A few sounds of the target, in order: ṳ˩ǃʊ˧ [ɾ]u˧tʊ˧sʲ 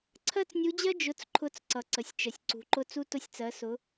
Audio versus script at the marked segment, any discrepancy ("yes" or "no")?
yes